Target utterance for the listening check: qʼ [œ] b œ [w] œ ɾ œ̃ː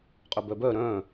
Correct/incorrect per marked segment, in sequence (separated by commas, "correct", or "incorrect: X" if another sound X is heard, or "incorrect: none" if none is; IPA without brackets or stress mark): incorrect: ø, incorrect: b